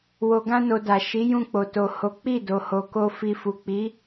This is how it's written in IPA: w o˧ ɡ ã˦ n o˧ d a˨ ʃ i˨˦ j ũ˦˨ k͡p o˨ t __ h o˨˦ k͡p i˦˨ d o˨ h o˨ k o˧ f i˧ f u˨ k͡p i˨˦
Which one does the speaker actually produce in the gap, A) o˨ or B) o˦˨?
A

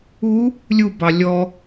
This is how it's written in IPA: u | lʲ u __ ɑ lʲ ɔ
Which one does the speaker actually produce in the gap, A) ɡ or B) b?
B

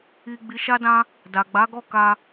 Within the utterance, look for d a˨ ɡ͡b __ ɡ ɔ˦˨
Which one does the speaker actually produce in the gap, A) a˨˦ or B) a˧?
A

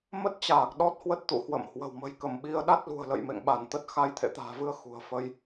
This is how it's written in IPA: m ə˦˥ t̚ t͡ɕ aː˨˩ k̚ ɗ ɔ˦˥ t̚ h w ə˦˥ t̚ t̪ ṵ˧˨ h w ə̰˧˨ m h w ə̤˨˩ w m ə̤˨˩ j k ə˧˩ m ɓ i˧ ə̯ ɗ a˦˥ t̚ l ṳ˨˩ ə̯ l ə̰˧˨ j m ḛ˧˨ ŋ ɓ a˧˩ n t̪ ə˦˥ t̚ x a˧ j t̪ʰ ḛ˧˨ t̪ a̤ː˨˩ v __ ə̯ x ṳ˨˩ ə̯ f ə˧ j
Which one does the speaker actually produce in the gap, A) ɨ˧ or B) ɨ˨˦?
A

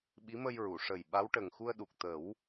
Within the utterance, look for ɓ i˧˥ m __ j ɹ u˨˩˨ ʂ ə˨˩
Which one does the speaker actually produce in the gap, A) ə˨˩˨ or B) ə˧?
B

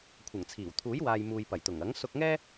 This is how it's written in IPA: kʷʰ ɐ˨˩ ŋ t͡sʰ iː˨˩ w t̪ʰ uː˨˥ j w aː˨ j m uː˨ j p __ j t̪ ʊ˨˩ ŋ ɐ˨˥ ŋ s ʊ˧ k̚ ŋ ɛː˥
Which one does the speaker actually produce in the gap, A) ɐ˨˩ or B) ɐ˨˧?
A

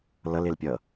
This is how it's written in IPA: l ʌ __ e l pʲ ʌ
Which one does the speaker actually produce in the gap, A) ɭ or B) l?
B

